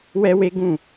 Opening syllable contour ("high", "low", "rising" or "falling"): high